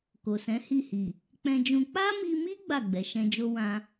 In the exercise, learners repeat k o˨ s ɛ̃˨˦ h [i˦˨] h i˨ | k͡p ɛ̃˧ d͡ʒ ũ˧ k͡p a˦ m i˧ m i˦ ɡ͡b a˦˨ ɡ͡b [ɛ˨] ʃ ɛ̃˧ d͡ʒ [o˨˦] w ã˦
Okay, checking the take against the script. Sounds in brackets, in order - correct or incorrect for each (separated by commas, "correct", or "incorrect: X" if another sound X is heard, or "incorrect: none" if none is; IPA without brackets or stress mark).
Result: correct, correct, incorrect: o˦